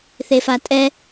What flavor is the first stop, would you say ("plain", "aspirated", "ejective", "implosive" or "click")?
ejective